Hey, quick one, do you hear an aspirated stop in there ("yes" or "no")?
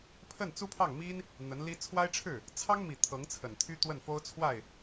yes